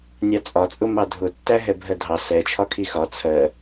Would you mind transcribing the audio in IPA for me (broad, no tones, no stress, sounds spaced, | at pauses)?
nʲ ɑ t͡sʼ ɒ t͡sʼ ʊ m ɑ dʱ ʊ tː æ ɦ ɛ bʱ ɜ dʱ ɑ s ɛ t͡ʃʰ ɒ kʰ i x ɒ t͡sʰ ɜ